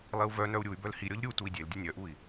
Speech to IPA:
lˠ i u̯ v œ n œ u̯ ɾʲ u y̯ b œ l h i ɾʲ ɔ ʎ ɾʲ u t u i̯ dʲ e l dʲ ʌ nʲ œ ʔ u i̯

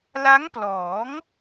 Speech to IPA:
l a˦˥ ŋ p l ɔː˩˦ ŋ

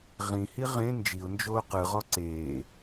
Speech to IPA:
ʁ ĩ h i ʁ ẽ n d͡ʒ i ʊ̯ n d͡ʒ oː q ɯ ʁ ɔ ǀ eː

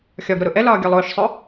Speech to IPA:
xʲ ɒ ɡ ɾ ʊ ɾ ʊ ʔ ɛ l ɒː ɡʲ ɒ lˠ ʊː ʃ sˤ ʊ

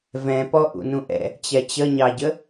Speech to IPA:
v ɛ̃ p ɔ ʔ ṵ n ũ ʔ ɛ̰ | t͡ɕ ɛ t͡ɕ ə ɲ ɑ ɟ ə

